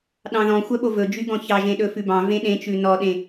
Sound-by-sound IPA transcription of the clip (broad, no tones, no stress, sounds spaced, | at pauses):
ɗ ɑ̃ ð ɔ̃ xʷ œ ɓ o v ɵ d͡ʒ y ɡ ɔ̃ ç ɑ ʒ ẽ ɗ ɵ f ʉ b ɑ̃ v ẽ ɗ ẽ t͡ʃ ʉ n ɔ ɗ ẽ